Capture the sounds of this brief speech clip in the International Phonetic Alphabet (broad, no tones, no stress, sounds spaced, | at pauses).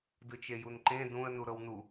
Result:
d ɯ t͡ʃ e j u n ǃ ẽ d ũ ə̯ n u ɾ ɤ w n u